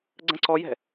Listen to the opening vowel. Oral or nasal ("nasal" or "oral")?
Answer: nasal